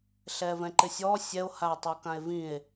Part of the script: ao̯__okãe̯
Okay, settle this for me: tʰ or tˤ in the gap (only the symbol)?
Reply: tˤ